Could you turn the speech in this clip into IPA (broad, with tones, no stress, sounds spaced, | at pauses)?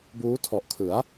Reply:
b uː˦˥ tʰ ɔ˨˩ ʔ kʰ ɯ˩˦ a̯